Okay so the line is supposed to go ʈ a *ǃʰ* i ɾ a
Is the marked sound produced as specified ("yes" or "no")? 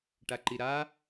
no